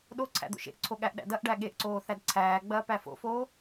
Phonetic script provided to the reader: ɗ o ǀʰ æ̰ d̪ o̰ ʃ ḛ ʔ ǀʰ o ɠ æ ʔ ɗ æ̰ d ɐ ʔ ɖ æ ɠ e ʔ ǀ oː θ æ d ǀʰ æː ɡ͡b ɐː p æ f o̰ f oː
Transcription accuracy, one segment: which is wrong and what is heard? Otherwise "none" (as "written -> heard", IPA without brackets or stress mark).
none